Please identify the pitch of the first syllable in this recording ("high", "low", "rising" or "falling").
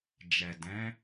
low